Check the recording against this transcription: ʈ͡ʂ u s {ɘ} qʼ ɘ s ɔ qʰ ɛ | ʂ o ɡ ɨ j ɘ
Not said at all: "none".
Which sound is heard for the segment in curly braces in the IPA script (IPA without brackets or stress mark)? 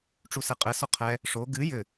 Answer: ɛ